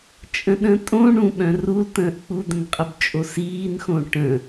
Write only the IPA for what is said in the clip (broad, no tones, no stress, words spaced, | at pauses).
t͡ʃʼə̃ɗə̃tʼõ ɳũ ɓœ̃rultə̃ːʔ k͡pu d̪ə̃nqʼəbt͡ʃʼosiːn xõʈə̃